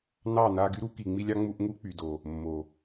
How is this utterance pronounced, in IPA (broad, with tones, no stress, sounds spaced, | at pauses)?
n ɑ˦˨ n a˧ ɡ y˦ ɾ u˦ k i˨ ŋ͡m i˧ lʲ ɑ˦ ŋ͡m u˧ ʔ ŋ u˦ k͡p y˨ d o˨ | mː o˨